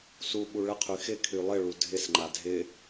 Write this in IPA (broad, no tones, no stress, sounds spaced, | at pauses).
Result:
s u ɓ u ɭ ə qʰ y x ɪ kʰ y lˠ ɪ ɭ u dʱ ɪ s ŋ͡ǃ a dʱ ɪ